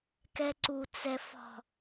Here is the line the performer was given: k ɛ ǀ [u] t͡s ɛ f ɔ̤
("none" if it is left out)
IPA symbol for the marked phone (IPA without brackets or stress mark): u